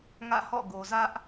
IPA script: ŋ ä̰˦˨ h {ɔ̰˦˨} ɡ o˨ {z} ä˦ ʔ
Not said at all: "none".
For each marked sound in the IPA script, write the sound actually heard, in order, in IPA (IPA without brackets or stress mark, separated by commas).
ɔ̰˦˨, z